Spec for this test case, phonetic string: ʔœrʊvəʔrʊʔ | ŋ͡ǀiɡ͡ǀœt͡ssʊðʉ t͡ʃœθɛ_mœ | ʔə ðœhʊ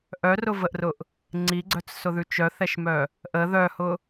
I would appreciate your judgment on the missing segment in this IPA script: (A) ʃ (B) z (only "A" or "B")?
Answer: A